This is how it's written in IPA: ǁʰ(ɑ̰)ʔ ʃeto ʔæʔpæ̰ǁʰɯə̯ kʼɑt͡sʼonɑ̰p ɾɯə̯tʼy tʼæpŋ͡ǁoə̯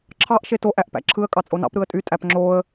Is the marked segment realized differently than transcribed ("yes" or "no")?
yes